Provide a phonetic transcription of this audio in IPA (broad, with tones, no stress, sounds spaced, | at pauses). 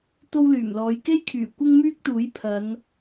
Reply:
t̪ o˥ w l yː˨˩ m l ɔː˨˧ j k e˥ j kʰ yː˨˩ kʷ ɪ˥ ŋ m yː˥ k̚ t̪ uː˨˥ j pʰ ɐ˨˧ n